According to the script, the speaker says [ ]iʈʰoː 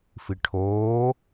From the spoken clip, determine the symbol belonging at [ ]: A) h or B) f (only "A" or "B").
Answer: B